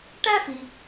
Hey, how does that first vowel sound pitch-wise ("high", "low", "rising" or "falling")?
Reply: high